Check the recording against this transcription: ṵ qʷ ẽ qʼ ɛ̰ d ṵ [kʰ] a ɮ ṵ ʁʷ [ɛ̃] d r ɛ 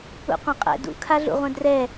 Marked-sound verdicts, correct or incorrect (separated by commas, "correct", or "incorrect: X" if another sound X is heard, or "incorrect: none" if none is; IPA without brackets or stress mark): correct, correct